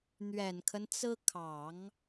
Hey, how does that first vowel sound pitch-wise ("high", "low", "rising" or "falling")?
low